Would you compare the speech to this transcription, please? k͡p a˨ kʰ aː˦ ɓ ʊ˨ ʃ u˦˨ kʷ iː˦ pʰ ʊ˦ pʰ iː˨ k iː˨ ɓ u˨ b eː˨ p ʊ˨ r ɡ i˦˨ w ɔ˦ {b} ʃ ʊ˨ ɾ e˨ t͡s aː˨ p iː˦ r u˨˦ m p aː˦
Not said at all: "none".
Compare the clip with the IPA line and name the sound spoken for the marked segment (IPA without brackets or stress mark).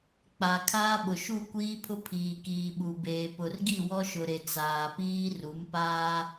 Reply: none